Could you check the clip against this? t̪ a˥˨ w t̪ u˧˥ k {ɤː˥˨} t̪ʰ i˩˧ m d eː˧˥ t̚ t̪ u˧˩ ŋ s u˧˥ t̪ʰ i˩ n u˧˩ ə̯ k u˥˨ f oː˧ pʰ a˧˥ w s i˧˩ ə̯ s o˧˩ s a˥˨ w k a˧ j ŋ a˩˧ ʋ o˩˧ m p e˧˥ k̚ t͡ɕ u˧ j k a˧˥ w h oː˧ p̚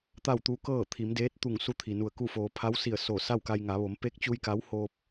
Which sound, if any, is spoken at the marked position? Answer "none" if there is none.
ɤː˥˨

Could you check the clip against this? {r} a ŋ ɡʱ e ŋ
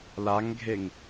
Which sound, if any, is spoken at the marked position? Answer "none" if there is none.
l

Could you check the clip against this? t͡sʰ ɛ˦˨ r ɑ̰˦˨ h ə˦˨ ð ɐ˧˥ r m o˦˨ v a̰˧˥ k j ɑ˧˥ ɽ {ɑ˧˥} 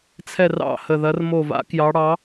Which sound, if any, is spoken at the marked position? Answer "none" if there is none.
ɑ˧˥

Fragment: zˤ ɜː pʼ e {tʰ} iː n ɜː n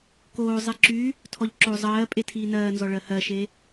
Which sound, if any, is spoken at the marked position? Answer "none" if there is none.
tʰ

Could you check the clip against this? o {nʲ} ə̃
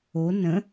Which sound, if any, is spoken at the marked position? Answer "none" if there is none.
n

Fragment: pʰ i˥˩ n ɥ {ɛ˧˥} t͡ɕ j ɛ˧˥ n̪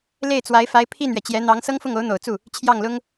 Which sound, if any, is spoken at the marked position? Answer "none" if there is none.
ɛ˩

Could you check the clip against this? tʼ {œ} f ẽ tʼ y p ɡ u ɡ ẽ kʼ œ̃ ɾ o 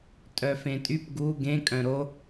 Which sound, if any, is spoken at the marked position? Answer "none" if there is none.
œ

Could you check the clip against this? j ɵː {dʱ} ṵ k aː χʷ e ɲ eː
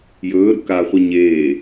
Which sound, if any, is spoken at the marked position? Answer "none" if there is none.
ɾ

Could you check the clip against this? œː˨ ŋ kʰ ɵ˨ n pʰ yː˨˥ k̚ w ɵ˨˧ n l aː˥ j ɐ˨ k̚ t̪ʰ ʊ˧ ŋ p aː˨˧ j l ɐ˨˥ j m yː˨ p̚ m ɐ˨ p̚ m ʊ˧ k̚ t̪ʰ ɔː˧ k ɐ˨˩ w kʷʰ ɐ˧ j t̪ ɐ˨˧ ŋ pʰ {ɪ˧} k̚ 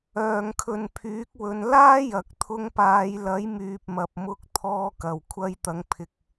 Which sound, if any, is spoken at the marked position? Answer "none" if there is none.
ɪ˨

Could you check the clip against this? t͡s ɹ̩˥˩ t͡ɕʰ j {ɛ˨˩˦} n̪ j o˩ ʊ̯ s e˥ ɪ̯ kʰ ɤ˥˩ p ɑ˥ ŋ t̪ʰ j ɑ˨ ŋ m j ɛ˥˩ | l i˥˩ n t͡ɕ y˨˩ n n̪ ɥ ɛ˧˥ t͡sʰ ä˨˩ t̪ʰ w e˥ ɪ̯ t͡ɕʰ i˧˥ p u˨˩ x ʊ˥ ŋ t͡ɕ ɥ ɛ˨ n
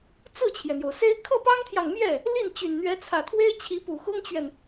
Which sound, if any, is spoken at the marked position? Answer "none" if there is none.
ɛ˩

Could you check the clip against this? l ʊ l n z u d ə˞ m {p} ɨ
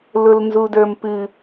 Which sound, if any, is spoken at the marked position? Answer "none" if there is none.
p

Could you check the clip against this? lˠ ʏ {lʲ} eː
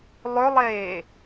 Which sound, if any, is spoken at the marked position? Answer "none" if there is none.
lˠ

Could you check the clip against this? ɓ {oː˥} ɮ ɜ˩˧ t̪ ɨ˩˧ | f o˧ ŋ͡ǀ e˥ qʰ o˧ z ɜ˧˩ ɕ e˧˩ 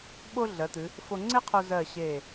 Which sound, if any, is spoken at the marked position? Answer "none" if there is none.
o˥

